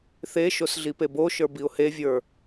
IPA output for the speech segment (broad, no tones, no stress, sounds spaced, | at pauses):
θ e ʃ o s ɮ i p e b o ʃ ə˞ b i ʊ̯ h e vʲ ə˞